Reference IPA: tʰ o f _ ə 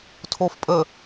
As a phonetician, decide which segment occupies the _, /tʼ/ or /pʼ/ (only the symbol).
pʼ